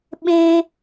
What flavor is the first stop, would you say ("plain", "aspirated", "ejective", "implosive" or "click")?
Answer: implosive